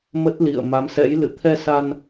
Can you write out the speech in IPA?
m ə˦˥ t̚ l ḭ˧˨ ə̯ m a˨˦ m s ɛ̰˧˥ j l ɨ̰˧˨ t̪ʰ ɛ˧ s a˧ n

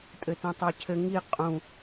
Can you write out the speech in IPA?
tʼ ɘ t ũ tˤ ə˞ cʰ ɘ ŋ i qʼ ũ

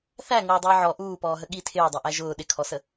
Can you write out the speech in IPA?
θ æ ŋ ʊː dˤ ɪː ʕ ɔ ʔ uː p ɔː ɦ ə ɠ i tʰ ɪː dˤ ɛ ʔ æ ʒ ʊː ɗ ɪ kʰ ɔ s ə

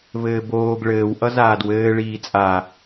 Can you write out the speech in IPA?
v ɘː b oː ɡ ɭ ɘː w ʔ ʌ z aː d w ɘː ɭ iː t͡sʼ a

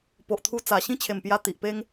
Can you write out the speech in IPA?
p o˨ ʔ t̪ʰ u˧ t͡s a˨˩ ɕ ĩ˦ t͡ɕʰ e˨˩ m p j a˧ t̪ i˨ ʔ p e˦ ŋ

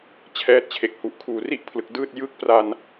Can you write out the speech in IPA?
t͡ɕʰ ɛː˦˥ t̚ t͡ɕʰ e˨˩ k̚ h u˨˩ ʔ kʰ uː˨˩ r i˥˩ ʔ pʰ l ɯ˨˩ k̚ d ɯː˥˩ t̚ j ɯ˥˩ k̚ p r a˧ n

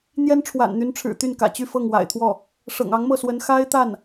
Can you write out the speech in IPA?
n̪ j ɛ˥ n ʈ͡ʂʰ w a̰˨˩ n n̪ y˧˥ n ʈ͡ʂʰ ɻ̩˨˩ t̪ y˥˩ n k ä̰˨˩ t͡ɕ y˥˧ f ɤ˥˩ ŋ w a̰˨˩ ɪ̯ t̪ʰ w ɔ˥˩ | ʂ ɤ̰˨˩ ŋ ɑ˧˥ ŋ m ɤ˥˩ s w ə˧˥ n x a˥ ɪ̯ t̪ a˥˩ n

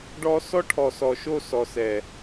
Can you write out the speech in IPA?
ɖ ɔ˦ s ɔ˦ ʈʰ ɔ˨ s ɔ˨ ʃ o˦˨ s ɔ˨ s ɛ˨

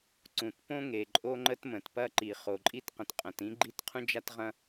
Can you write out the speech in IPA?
ǀ ũ˩ t p õ˥ ŋ e˩ ǃʼ o˥ ŋ͡ǃ ə˥ t m ə̃˩ t p ɐ˥ ǃ i˩ χ o˩ ǃʼ i˥ t q ə̃˩ t qʼ ɐ̃˩ t ĩ˥ ɡ͡ǃ i˥ t qʰ ũ˥ d͡ʒ a˥ t ʁ ɐ̃˥

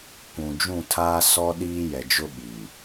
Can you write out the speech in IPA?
kʷ ũ˨ d͡ʒ ũ˦˨ tʰ aː˦ s ɔ˦ ɗ iː˦ j ɛ˨ d͡ʒ ʊ˦ ɓ i˨

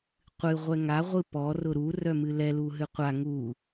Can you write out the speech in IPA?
qʷ ɨ ʁʷ ɛ ŋ a ʁʷ ɨ p ɔ r ʊ ɾ u r œ m ɨ l ɛ l u ɦ ɨ qʷ a ŋ u

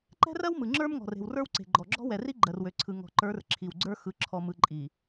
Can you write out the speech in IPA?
ǃ ɛ̤˦ r ɜ˦ w m ɯ˨ ŋ͡ǁ ə˞˦ m ŋ ɔ̤˨ r e̤˨ w r ə˞˦ w ǀ e̤˨ ɡ͡ǃ ɔ˨ ɡ͡ǁ ɔ̤˦ w ɛ˨ r i˦ ɡ͡ǃ ɜ˨ r w ø˨ ǀʰ ɯ˨ ŋ ɔ̤˨ ǃ ə˞˨˦ r ǁʰ i˨ w ɡ͡ǀ ə˞˦ x ɯ˨ ǁʰ ɔ˨ m ɯ˨ ǃʼ i˨

